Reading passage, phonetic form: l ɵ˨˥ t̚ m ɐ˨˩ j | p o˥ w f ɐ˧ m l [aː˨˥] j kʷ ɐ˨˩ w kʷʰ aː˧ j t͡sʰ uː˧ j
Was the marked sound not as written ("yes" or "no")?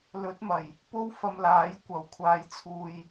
no